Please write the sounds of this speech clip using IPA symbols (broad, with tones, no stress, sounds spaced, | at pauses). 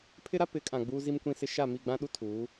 pʰ ɪ˦ ɾ a˦ p ɪ˨˦ kʼ ã˨ ɡ͡b uː˦ z i˦ m kʷ ĩ˦ s ɪ˦ ʃ a˦˨ m i˦˨ ɡ͡b ã˦ ɗ u˦ tʰ uː˨˦